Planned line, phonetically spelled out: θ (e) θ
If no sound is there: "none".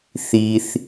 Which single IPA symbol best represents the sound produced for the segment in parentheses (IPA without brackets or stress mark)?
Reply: i